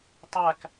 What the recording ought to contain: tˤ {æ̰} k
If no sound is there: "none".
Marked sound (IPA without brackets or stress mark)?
æ